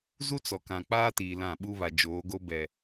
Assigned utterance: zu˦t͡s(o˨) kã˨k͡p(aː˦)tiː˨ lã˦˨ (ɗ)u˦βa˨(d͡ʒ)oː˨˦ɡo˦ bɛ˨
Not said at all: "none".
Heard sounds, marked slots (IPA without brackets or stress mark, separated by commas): ɔ˨, aː˦, ɓ, d͡ʒ